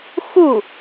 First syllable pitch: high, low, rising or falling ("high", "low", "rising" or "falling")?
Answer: falling